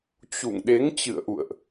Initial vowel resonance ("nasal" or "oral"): oral